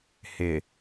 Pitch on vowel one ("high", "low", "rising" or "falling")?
low